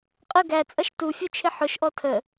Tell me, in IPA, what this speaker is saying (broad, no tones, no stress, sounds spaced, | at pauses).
qʼ ə ɡ æ t͡sʼ ʌ ʃ t u fʲ u t͡ʃʰ ɪ ħ ʊ ʃ ʔ ɔ tʰ ə